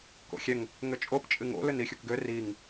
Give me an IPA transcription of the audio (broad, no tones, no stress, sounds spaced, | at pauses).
k o̰ xʲ ɛ ŋ | ŋ ʏ t͡ʃʼ o p t͡ʃʼ ɨ ŋ o̰ l ʏ n i xʲ u k ɡ ø r i ŋ